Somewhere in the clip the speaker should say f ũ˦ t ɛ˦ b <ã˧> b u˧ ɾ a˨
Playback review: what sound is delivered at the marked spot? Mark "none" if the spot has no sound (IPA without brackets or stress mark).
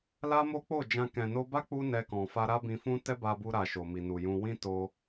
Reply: a˧